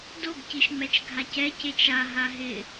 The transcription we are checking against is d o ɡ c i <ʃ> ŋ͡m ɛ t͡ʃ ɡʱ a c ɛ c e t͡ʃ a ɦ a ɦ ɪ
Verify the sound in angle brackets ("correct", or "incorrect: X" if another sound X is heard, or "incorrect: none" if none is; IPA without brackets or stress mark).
correct